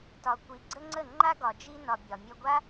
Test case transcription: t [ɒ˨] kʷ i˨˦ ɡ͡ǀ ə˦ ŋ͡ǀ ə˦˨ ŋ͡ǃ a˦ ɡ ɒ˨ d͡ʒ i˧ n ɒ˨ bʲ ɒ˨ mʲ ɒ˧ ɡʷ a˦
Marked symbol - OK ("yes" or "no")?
yes